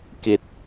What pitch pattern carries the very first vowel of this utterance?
low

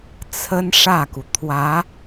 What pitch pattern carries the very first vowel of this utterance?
high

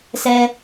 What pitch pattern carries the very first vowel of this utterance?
high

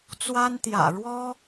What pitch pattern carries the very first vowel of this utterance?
high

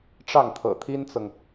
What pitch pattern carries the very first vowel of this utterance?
falling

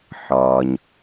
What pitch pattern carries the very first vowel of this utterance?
low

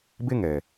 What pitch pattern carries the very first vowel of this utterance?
high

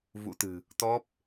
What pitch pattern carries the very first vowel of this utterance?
rising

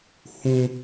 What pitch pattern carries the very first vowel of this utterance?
high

